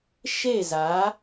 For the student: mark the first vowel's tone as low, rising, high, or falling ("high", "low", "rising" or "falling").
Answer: falling